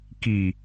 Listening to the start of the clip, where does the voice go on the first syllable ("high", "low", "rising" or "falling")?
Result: low